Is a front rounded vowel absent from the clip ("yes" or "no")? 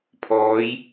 yes